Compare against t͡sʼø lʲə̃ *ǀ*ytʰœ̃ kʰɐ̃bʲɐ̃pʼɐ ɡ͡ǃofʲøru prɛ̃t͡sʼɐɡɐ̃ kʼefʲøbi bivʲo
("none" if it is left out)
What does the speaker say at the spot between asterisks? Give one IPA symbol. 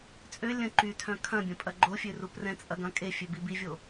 ǃ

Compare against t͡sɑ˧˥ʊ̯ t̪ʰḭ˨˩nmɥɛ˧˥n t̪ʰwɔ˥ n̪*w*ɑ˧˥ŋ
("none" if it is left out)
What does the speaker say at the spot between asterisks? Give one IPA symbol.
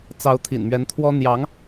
j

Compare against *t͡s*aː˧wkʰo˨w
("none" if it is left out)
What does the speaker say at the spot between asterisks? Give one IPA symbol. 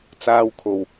t͡s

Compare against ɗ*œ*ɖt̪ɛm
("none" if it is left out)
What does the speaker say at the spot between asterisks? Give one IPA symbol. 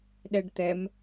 ɛ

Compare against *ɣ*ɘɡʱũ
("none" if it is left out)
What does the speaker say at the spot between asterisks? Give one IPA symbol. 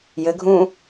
j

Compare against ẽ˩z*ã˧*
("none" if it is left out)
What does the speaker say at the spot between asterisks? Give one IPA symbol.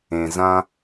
ã˧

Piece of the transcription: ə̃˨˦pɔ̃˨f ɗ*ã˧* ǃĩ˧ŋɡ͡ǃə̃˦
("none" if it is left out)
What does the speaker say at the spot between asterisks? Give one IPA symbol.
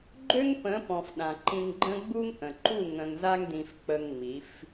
ã˨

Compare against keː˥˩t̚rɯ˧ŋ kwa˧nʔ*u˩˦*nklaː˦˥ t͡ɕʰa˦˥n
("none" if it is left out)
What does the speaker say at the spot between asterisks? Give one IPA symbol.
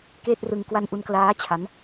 u˧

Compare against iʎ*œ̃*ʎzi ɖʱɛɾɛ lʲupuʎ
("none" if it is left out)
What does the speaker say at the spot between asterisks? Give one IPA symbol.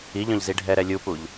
œ̃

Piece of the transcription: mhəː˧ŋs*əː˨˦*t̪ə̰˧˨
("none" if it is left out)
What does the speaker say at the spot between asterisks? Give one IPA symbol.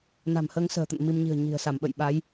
ə̤ː˨˩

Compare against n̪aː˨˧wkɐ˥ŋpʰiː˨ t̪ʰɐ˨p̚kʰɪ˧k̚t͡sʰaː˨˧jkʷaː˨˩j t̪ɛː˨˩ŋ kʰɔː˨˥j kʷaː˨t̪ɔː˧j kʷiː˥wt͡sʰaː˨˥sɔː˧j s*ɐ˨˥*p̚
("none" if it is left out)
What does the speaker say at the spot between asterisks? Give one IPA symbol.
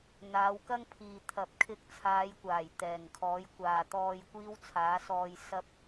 ɐ˧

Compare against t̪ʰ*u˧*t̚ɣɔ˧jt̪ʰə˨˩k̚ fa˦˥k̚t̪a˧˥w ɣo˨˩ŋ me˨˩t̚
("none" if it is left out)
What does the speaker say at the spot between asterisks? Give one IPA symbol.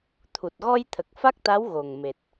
u˨˩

